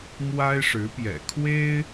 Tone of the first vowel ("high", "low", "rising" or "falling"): high